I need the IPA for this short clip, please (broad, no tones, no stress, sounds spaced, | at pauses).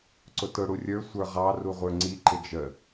ǀ ʊ t ʊ ɽ u rʲ ə˞ sʷ ə˞ ʁ ɑ r u ʁʷ ə˞ ŋ͡ǀ i ǃ ɪ d͡ʒ ə